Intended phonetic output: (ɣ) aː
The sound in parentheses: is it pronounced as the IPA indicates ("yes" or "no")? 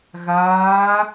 yes